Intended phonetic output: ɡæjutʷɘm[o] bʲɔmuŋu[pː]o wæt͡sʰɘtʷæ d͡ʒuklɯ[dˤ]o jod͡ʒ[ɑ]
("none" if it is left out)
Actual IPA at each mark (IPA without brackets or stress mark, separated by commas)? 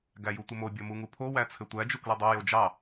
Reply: o, pʰ, dˤ, ɑ